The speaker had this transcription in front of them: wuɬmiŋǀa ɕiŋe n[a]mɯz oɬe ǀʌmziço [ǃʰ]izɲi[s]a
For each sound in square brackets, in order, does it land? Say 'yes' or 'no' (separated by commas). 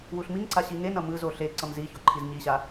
no, yes, no